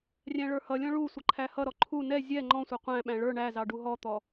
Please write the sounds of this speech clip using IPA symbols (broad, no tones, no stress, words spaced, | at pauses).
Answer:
rʲæ̃ɭə˞hʌlʲɔ̃ ɭusʷə ǃʰæhʌɾɔ ǃʰu nɛ zʲɛ ŋ͡ǃɔ̃sʷʌ qʷæ̃ɓæ̃ ɭə˞ ɳæzɑ ɖuɦɔt̪ɔ